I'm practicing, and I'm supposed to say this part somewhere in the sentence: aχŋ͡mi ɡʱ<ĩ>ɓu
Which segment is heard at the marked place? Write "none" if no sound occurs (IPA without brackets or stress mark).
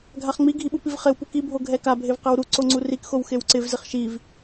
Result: i